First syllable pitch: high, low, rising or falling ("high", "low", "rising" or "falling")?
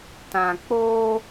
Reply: low